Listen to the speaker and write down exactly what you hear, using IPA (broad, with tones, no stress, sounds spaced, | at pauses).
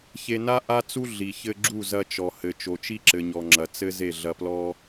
ç e˧ n a˦ ʔ a˦ t͡s u˦ ɮ i˨ ç ɘ˧ ɡ͡ǁ u˦˨ z ɐ˧ t͡ʃ ɔ˨ h ɘ˨ t͡ʃ o˨ t͡ʃ i˦ ǁ ɘ˨ ɲ ɔ˨ ŋ͡ǁ ɐ˨ t͡s ɘ˦ z e˦˨ ɮ ɐ˧ p l ɔ˦